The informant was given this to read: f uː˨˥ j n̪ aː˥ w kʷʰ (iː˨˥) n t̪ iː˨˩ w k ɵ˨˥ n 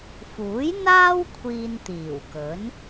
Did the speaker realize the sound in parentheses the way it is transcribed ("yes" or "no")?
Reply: no